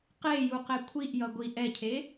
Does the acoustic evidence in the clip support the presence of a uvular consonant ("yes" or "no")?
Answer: yes